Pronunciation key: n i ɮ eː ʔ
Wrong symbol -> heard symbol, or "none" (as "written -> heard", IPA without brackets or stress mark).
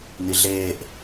none